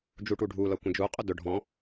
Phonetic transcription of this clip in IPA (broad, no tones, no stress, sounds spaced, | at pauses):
d͡ʒ u ʈ u ɖʱ u l ʌ kʷ ə̃ d͡ʒ u qʼ ʊ d ʊ ɖʱ ɔ̃